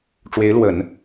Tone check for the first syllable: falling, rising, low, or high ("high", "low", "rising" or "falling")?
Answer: rising